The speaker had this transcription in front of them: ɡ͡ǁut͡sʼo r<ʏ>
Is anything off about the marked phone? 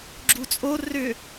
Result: no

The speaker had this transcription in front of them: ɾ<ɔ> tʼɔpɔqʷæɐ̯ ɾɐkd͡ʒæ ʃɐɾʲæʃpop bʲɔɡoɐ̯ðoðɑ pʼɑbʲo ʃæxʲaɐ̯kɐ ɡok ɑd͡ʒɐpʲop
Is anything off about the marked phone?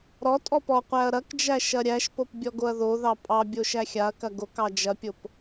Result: no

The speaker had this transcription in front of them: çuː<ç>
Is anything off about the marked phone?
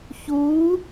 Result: yes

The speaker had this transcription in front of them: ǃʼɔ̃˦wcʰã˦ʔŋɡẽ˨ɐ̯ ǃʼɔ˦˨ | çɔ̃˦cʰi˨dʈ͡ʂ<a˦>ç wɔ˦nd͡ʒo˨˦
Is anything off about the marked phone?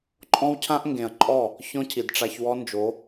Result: yes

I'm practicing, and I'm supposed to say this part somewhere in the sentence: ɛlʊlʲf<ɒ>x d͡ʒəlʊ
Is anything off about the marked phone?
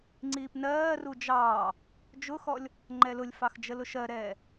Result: yes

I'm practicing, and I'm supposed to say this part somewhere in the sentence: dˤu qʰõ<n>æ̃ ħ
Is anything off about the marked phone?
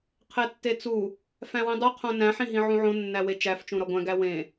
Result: no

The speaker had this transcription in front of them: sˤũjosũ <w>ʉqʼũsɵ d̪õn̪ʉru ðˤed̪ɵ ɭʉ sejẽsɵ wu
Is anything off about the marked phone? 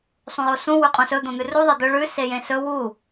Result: no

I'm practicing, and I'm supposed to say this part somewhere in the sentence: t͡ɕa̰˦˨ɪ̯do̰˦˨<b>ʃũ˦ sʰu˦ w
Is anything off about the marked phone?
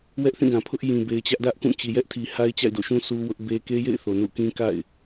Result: yes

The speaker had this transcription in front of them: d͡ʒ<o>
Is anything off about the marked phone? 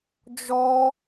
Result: yes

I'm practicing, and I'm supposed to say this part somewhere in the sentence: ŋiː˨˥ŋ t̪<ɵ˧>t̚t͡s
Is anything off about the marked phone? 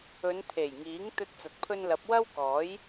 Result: no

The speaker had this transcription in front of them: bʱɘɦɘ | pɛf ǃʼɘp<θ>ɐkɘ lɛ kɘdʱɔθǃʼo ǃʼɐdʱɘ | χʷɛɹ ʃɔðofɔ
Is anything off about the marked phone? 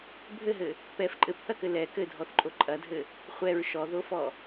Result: no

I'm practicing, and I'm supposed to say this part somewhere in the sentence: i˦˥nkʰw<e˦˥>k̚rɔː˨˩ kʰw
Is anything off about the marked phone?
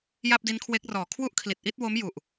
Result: no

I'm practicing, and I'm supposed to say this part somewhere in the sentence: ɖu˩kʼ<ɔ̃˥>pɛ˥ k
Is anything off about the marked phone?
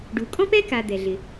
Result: no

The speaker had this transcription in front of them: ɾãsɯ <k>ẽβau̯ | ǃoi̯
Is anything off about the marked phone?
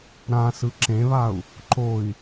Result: yes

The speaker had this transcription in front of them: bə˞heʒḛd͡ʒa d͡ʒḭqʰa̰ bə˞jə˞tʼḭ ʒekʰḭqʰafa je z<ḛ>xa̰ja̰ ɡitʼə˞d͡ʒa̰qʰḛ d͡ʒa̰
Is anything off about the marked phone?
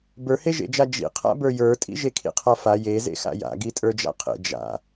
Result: no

